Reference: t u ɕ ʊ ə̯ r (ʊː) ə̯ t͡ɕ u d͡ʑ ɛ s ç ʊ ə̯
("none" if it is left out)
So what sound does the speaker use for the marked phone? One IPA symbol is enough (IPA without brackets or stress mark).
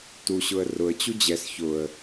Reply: ʊ